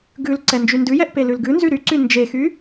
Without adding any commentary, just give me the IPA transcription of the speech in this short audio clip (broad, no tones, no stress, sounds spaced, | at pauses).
ɡ ʉ l ǀ ɛ n d͡ʒ y n d ʉ j ɛ ʔ p e l ʉ l ɡ ʉ n z y ɾ y ǀ y n d͡ʒ e x y